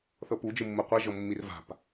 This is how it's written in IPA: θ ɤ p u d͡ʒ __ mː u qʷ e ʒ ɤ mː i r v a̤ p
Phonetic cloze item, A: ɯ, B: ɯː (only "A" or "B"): A